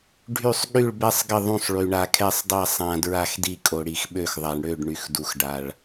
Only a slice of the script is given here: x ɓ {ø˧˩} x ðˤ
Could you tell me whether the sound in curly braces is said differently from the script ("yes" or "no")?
no